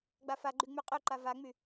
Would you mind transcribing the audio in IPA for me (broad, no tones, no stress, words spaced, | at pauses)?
ɡ͡bafaɡ͡ǃy ŋ͡myqʼøǃa vaŋ͡my